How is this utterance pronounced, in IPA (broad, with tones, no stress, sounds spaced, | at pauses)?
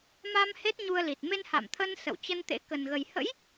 m a˧ m h e˦˥ t̚ ɲ u˧ ə̯ l i˨˩ t̚ m e˧ n h a̰˧˨ m t̪ʰ ə˧ n s ə̰˧˨ w t͡ɕ ə˧ n t̪ ḛ˧˥ k ə˨˩ n ɣ ə˨˩ j h ə̰˧˥ j